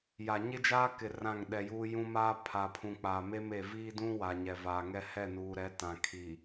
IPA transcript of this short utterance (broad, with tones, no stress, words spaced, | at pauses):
ja˨ ɲɪ˦d͡ʒaː˦ kɪ˨ rã˦˨ŋɗɛ˨juː˦ jũ˦ maː˦ pʰa˨pʰũ˨ k͡paː˨me˦m e˨ viː˦dũ˦ wa˨ɲɛ˨ vaː˨ŋɛ˦ hɛ˦˨nuː˨ɾɛ˨˦ tã˨kʰi˨